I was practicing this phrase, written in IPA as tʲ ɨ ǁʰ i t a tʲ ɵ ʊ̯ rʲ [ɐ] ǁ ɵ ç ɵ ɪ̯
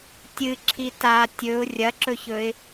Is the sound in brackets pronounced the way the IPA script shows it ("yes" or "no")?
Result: yes